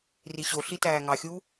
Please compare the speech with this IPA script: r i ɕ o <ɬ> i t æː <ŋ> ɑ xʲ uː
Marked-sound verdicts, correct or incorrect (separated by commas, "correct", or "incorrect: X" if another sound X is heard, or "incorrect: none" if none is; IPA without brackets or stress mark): correct, correct